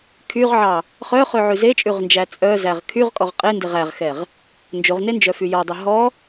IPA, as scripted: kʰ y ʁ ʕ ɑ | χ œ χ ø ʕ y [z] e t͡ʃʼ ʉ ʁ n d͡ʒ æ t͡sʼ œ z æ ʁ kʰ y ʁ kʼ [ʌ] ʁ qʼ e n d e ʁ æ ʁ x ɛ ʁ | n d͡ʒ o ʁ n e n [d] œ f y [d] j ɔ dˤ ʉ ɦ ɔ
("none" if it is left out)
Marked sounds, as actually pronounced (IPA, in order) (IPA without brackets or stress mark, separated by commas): z, ɔ, d͡ʒ, none